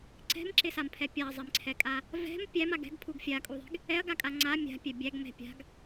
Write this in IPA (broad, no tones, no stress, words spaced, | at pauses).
ǀɛ̤mǁɪsampʰɛ pʲaɐ̯zˤɪmǀʰɛkʼa | vɛ̤m pʲæma ɡɛ̤ɡpʰuɡ fʲakʼuðˤɛ̤ɡ | ɛɐ̯ɡakʼa ŋ͡ǀa mʲa̤pʲɛ bʲæɡmɛ̤ pʲa̤ɡ